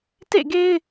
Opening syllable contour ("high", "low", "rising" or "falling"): falling